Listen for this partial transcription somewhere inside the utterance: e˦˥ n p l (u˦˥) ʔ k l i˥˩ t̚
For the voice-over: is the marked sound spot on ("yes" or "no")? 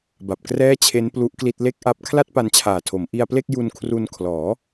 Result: yes